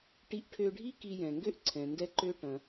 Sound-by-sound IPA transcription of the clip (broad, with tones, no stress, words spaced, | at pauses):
ʈi˧ʔʈʰø˧ɖʱi˥ ki˧jɛ̃˩ŋɡø˥ʔ ǀʰɛ̃˩ndɛ˧ǃø˧ ʈɐ̃˩